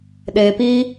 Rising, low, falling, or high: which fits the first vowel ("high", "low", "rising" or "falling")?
low